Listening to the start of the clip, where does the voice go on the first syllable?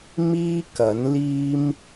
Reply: high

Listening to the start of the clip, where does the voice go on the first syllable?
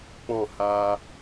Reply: falling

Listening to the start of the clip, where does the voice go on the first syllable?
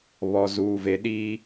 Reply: low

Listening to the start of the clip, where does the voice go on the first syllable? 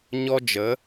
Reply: high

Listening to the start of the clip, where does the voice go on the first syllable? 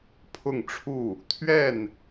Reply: falling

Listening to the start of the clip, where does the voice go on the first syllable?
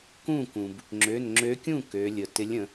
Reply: falling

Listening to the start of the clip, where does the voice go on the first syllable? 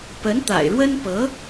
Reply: rising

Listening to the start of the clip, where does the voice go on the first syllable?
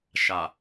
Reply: low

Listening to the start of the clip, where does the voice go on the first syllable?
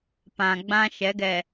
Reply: low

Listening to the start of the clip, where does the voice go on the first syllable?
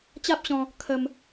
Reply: high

